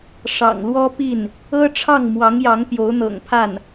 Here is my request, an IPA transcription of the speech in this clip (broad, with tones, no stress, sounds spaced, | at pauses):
ʂ ɑ̰˨˩ ŋ l w ɔ˥ p i˥˩ n | ɤ˥ ʈ͡ʂʰ ɑ˥˩ ŋ m w ɑ˧˥ ŋ j ɑ˧˥ ŋ p j o˧˥ ʊ̯ n̪ ɤ̰˨˩ ŋ pʰ a˥˩ n